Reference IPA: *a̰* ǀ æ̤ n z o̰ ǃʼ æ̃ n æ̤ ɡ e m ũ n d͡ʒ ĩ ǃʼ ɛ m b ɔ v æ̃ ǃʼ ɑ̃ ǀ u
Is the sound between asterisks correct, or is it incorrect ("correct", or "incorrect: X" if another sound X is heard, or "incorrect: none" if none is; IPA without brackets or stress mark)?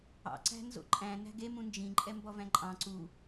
incorrect: ɑ̰